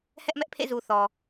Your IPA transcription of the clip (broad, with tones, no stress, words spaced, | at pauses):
hɛ˦ʔmɛ˦ʔpʰḛ˦˨zu˨ θɔ˨